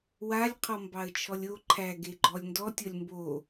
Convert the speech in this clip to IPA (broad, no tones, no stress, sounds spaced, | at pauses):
w a lʲ qʰ ɔ m b ɑ ə̯ t͡ʃʰ ɔ lʲ o ǃʰ æ ɡ e ɡ͡ǃ ɔ lʲ n d ɔ tʲ ɔ lʲ m b o